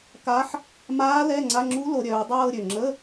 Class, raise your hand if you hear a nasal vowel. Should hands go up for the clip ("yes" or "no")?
no